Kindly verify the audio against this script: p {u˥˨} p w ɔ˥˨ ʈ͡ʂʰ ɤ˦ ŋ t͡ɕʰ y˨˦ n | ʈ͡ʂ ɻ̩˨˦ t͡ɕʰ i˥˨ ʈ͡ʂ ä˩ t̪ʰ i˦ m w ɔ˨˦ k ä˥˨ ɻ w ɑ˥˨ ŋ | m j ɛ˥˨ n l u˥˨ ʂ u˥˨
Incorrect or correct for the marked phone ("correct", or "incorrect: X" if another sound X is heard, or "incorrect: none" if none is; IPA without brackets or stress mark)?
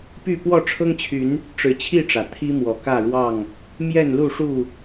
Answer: incorrect: y˥˨